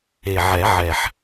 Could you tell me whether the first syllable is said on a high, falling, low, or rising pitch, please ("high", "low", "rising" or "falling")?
low